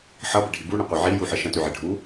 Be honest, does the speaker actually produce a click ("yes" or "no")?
no